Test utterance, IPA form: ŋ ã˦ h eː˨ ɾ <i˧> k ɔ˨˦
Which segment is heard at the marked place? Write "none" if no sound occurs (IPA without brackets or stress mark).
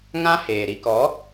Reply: i˧